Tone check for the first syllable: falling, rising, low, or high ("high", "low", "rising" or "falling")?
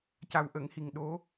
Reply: low